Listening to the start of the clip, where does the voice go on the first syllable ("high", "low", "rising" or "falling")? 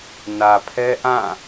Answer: low